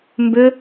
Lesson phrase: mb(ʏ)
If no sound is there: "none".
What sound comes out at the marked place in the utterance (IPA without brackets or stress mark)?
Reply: ʏ